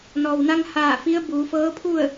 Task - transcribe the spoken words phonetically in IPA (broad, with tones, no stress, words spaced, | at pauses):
nɔː˩wna˧ŋhaː˧˩ fi˧˥ə̯ buː˩˧fɤː˧˥pʰu˥˨ə̯